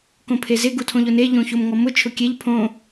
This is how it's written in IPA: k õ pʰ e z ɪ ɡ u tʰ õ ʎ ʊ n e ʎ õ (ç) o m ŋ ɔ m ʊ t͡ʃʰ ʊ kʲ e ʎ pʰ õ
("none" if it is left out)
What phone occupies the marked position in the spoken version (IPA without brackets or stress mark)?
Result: ç